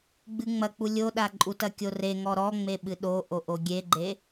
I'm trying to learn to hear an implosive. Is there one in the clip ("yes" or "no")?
yes